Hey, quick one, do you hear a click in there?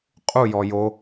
no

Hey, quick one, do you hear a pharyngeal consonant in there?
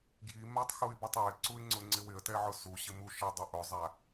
yes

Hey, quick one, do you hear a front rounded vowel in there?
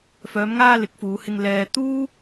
yes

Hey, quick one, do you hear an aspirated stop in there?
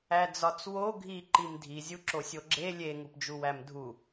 no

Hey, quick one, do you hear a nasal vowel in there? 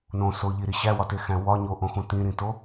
yes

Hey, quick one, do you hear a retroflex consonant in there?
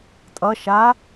no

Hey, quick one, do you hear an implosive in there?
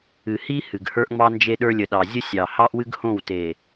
yes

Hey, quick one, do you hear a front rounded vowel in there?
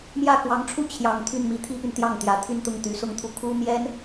yes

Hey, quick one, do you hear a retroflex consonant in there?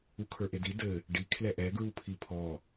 yes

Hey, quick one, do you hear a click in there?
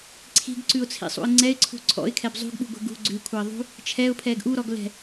yes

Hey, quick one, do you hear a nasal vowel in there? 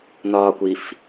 no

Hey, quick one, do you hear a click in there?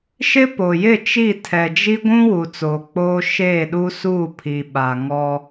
no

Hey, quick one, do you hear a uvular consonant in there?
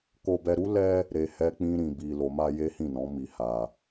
no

